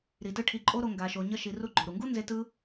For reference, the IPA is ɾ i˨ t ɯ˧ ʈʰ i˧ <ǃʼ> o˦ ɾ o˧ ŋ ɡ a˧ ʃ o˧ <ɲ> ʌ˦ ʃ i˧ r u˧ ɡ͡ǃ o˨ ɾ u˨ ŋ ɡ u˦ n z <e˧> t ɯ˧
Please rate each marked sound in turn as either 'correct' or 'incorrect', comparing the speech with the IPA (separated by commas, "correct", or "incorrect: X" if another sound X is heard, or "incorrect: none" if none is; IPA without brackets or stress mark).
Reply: correct, correct, correct